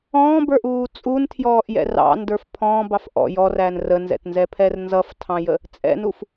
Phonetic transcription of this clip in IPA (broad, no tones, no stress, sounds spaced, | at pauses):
ɔ̃ː b ə˞ ʔ uː t͡sʼ u n tʰ j ɔː ʔ j ɛ̰ r ɑ̰ n d ə˞ f pʰ ɔ̃ b ɑ f ʔ ɔ̰ j ɔ r æ n r ə n z ɛ̰ t n z ɛ pʰ ɛ r n z ʌ f tʰ ɑ̃ j ə | t͡sʼ ɛ̰ n u f